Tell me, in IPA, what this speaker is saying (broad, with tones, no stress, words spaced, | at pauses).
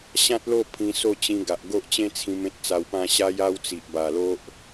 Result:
ɕã˦t̚lo˥˧ pʰĩ˧so˥˧t͡ɕĩ˧ ɡa˨ʔɡo˦ʔt͡ɕẽ˦t͡sʰĩ˧m ẽ˦t̚t͡sa˧wpã˥˧ ɕa˧ja˧w t͡si˨ʔba˨˩lo˦ʔ